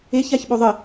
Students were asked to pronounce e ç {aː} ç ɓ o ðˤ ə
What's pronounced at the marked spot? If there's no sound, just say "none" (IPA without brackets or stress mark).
a